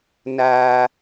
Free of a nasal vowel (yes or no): yes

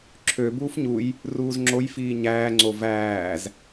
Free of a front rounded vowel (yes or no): no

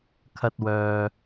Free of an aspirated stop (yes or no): no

